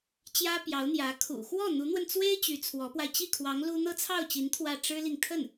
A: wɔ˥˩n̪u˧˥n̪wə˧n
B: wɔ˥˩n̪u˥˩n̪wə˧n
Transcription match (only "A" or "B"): A